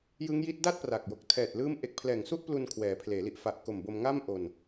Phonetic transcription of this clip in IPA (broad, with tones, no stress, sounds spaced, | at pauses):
j ɯ˦˥ ŋ j i˦˥ t̚ d a˥˩ t̚ p r a˨˩ k̚ j o˨˩ k̚ tʰ ɛː˨˩ t̚ l ɯː˦˥ m ʔ e˨˩ k̚ pʰ l ɛː˨˩ ŋ s u˥˩ ʔ p l u˧ n kʰ w ɛː˩˦ pʰ l eː˩˦ l i˨˩ ʔ f a˨˩ ʔ k o˨˩ m b o˧ m ŋ aː˥˩ m ʔ o˧ n